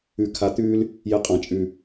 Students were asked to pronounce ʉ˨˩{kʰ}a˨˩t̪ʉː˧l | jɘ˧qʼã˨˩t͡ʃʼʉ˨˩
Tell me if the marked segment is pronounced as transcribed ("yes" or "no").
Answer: yes